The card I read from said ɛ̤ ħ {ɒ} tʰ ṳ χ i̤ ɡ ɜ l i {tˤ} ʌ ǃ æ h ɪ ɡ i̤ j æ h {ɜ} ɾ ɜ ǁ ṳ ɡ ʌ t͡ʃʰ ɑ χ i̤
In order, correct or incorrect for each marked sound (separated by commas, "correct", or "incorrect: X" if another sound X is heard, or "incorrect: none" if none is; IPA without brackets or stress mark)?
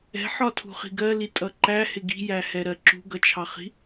correct, incorrect: tʼ, incorrect: ɛ